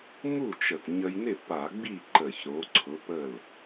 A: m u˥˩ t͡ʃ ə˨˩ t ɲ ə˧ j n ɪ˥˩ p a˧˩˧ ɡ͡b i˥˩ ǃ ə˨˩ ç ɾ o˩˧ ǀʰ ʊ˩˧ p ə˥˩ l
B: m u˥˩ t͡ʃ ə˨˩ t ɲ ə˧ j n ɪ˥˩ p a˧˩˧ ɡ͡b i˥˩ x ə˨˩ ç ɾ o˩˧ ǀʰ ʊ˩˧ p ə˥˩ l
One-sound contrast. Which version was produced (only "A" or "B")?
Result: A